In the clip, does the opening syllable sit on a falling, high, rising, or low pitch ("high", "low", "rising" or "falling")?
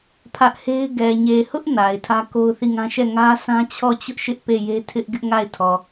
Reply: high